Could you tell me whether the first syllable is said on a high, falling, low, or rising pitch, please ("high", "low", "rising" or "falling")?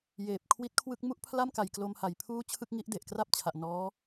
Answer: low